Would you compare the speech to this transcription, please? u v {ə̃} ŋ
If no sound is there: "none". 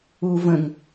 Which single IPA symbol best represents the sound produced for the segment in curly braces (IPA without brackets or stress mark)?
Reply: ə̃